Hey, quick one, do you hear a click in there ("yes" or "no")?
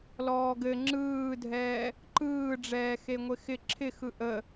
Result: yes